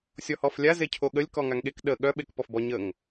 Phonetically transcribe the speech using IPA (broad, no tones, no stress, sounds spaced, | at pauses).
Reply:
sʲ ɔ h ɔ f lʲ a z e cʰ o ɠ ə lʲ k ɔ ŋ a ŋ ɠ e k ɗ ə ɠ œ ɓ e k p ɔ f b ɔ ɲ ə ŋ